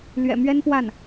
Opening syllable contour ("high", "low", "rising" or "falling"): low